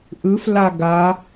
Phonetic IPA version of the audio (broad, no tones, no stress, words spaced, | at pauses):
ʔɯfla ɡa